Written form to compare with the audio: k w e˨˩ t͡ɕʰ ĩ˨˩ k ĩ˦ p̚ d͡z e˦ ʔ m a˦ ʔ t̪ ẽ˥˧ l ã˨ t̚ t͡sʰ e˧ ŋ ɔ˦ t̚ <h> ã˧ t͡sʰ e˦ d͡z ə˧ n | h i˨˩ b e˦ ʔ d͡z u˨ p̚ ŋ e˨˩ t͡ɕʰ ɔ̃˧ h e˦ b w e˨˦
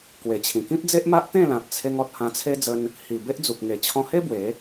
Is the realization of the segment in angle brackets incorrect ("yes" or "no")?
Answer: no